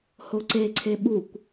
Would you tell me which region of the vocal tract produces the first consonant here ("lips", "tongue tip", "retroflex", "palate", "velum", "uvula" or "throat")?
throat